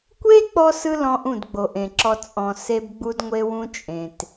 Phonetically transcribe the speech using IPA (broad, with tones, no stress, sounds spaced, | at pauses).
kʷ e˦ k͡p ɔ˦ s ɯ˦ l ɔ̃˧ ʔ ũ˦˨ d ɡ͡b o˨ ʔ ẽ˨ ǁ ɔ˧ t͡sʼ ɔ̃˨ s e˧ b ɡ͡b u˧ d ŋʷ e˧ w ũ˧ t͡ʃʼ ẽ˨ t